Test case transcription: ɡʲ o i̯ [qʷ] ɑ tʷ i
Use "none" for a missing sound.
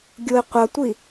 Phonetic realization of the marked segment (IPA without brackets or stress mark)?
qʷ